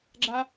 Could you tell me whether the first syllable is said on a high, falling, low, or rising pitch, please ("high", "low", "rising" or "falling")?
high